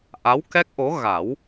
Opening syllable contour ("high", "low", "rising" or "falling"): rising